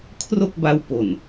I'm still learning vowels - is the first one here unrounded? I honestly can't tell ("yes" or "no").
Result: no